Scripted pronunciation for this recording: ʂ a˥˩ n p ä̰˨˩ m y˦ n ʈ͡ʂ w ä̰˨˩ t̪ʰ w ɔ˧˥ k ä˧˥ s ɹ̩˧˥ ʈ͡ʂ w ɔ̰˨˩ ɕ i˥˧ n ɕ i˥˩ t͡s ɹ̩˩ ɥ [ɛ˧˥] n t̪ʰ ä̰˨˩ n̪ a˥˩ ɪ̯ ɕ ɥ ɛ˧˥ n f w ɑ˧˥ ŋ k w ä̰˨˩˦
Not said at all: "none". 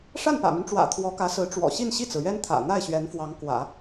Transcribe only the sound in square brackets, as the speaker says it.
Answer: ɛ˥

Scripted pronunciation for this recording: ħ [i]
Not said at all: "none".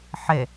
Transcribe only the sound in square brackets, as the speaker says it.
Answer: e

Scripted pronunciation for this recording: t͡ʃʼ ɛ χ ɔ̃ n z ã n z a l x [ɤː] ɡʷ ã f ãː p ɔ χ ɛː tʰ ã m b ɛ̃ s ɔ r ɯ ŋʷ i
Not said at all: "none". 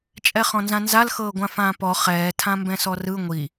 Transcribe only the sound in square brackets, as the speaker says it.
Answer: ɤː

